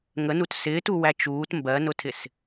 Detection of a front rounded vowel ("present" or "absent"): absent